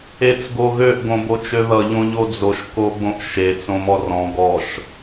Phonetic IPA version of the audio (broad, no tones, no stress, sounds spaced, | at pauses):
e t͡s ɡ o ɣ ø ʔ ɡ õ b o t͡ʃ ø ð ʌ ʎ õ ʎ o d͡z o ʃ k o ɡ͡b õ ʔ ʃ e t͡s õ m ɔ r ɔ̃ ɡ ɔ ʃ